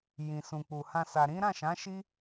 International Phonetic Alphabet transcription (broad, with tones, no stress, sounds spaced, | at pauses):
j ĩ˨ s ũ˨ k͡p u˨ h ã˧ s a˨ ɾ ĩ˨˦ ɾ ã˦˨ ʃ ã˨˦ ʃ i˦